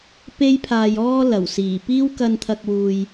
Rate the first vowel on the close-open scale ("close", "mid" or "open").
mid